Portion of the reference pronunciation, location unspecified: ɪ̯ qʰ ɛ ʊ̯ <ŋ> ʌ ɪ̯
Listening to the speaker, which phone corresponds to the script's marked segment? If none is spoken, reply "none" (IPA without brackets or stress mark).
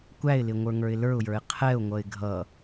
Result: ŋʷ